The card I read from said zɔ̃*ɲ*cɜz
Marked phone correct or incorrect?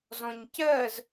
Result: correct